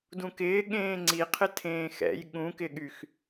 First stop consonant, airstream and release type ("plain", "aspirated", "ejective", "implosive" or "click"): plain